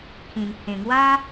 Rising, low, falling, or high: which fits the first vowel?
low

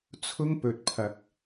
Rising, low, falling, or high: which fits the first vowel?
high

